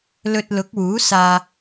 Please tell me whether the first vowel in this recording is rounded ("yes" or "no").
yes